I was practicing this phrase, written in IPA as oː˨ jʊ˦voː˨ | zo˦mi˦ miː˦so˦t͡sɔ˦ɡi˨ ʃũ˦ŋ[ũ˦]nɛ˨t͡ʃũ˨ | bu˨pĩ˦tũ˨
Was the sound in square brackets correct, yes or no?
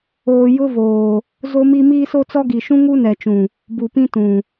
no